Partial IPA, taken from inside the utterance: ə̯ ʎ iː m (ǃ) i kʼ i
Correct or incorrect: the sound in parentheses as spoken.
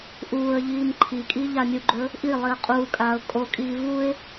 incorrect: ǃʰ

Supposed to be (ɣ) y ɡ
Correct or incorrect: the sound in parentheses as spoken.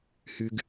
incorrect: h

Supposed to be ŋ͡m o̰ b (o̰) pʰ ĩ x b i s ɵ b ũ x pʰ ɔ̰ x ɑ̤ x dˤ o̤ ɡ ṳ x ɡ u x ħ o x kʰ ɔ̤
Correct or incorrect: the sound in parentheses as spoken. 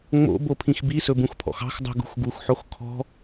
incorrect: o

